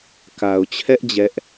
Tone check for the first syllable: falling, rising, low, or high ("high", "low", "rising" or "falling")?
low